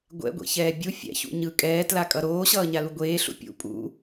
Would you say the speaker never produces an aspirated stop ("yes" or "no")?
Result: yes